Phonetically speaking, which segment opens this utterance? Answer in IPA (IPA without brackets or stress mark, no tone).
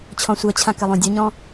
t͡ɕʰ